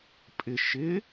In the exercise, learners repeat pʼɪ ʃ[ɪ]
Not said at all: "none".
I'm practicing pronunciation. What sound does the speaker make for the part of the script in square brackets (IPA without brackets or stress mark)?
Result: ɪ